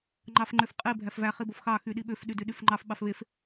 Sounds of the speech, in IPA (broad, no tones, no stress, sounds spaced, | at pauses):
ŋ͡ǃ ɑ f ŋ͡ǃ ø f qʼ i bʱ æ f v æ χ i b o f x ɑ x y ɗ i ɓ ø f ɗ y d y ɗ y f ŋ͡ǃ ɑ f ɓ ɑ f β e f